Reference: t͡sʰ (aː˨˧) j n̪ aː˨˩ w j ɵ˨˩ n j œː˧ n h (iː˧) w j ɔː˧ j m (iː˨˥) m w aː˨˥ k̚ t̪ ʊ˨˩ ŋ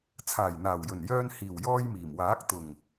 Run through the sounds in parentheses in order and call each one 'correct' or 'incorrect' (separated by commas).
incorrect, incorrect, incorrect